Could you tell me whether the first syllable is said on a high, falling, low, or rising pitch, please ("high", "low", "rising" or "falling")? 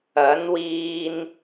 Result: rising